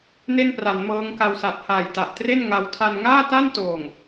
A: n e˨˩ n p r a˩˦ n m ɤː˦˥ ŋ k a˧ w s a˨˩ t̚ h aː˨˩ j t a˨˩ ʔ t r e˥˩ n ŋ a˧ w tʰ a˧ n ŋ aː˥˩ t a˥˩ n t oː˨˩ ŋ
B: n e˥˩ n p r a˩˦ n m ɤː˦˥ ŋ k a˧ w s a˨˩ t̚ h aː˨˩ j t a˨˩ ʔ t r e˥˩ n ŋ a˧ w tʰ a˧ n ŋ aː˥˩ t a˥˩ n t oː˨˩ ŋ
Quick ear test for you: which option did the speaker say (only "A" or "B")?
B